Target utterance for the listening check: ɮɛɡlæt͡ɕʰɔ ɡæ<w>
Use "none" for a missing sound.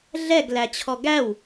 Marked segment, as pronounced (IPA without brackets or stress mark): w